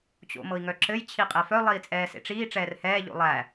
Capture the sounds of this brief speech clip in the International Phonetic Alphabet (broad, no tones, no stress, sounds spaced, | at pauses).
t͡ɕ o̰ m ɤ i̯ ŋ œ ǁ ɘ j t͡ɕʰ i qʼ ɛ f œ lˠ iː t͡sʼ ɛː s ḛ ʈ͡ʂ iː ʈ͡ʂ ɛː r h ɛː ʎ o̰ lˠ æ